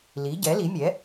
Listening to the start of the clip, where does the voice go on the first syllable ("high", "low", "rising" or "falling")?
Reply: rising